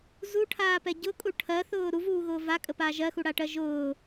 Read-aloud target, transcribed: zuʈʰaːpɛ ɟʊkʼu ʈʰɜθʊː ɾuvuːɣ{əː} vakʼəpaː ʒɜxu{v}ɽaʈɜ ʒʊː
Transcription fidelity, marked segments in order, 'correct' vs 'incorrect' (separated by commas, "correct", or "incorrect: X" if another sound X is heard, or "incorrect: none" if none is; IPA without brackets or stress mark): incorrect: ʊː, incorrect: none